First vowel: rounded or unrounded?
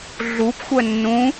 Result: rounded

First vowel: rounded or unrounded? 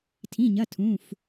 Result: unrounded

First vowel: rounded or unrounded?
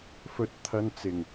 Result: rounded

